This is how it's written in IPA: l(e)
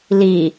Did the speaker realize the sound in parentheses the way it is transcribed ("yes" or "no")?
no